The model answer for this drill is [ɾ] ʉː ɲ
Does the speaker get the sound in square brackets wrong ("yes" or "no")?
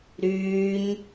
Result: no